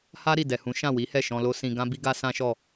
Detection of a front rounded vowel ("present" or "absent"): absent